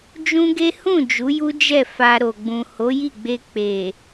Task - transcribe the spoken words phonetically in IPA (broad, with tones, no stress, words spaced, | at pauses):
d͡ʒũ˦ɡe˦ hũ˦˨ d͡ʒu˨˦ju˦ d͡ʒɛ˦˨ fa˧ɾo˨ɡ͡bũ˨ ho˨˦ji˦˨ɡ͡be˧ k͡pe˨